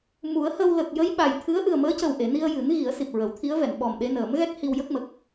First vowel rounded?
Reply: yes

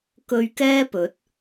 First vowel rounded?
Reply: yes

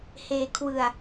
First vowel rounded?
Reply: no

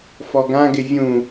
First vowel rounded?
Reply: yes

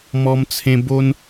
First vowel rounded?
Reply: yes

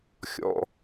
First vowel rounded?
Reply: yes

